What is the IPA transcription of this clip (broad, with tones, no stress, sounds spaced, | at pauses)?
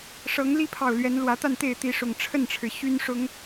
ʂ ɤ˨˦ ŋ l i˦ pʰ ɑ˨˩ ʊ̯ l ɥ ɛ˨˦ n l w ä˨˦ t̪ a˥˨ n t̪ e˥˨ ɪ̯ t̪ i˨˦ ʂ ʊ˨˩ ŋ ʈ͡ʂʰ ə˥˨ n ʈ͡ʂʰ ɻ̩˩ ɕ y˦ n ʂ ʊ˨˦ ŋ